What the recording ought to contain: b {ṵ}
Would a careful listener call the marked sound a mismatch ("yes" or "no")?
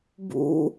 no